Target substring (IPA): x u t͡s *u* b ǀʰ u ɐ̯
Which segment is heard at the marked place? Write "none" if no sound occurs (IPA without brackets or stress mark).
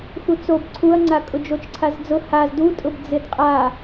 o